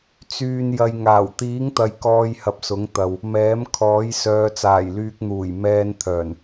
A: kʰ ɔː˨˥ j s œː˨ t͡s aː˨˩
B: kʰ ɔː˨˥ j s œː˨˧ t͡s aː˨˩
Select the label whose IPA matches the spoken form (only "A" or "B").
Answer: B